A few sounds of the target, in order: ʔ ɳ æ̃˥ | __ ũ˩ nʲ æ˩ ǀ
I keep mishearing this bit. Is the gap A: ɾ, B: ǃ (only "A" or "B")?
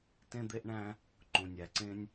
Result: B